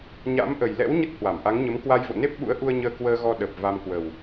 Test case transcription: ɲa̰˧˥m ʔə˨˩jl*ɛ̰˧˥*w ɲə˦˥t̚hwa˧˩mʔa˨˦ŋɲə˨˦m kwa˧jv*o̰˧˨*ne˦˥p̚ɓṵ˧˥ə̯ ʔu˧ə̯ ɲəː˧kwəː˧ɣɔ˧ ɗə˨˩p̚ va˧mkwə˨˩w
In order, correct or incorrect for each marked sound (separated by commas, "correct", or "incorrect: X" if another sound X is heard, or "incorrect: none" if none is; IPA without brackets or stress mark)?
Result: correct, correct